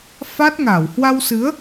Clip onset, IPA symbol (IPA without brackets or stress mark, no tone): f